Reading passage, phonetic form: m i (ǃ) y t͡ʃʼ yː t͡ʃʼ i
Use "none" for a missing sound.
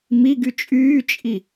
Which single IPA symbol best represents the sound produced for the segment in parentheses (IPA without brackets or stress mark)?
ɡ